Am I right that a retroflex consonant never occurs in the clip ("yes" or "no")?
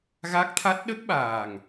yes